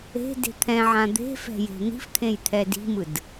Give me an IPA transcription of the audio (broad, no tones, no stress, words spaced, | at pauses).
e̤de̤ t̪ʰɛ̃ʕã d̪e̤fɛ̤ je̤n̪i̤ft̪ʰẽj t̪ʰɛdi̤mɯd